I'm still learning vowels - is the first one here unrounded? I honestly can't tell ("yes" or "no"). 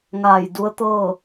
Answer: yes